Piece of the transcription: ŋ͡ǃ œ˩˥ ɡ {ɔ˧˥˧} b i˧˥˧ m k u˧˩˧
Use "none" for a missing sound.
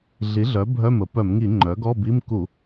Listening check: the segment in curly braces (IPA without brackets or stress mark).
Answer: ɔ˧˥˧